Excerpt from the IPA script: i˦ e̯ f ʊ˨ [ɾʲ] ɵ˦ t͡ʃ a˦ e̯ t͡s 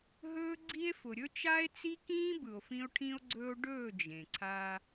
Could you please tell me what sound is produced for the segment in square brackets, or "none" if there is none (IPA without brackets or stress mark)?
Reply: ɾʲ